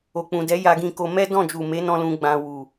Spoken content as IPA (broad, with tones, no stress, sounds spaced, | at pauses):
o˨ k͡p ũ˨ d ɛ˨˦ j a˧ ɡ ĩ˧ k o˧ m ɛ˦ d ɔ̃˦˨ d͡ʒ u˨ m e˨˦ n ɔ̃˧ l ũ˧ ɡ͡b ã˧ w u˨